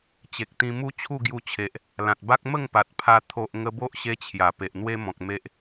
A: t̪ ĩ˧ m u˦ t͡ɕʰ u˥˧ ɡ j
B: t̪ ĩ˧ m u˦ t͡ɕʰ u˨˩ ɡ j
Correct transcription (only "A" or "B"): A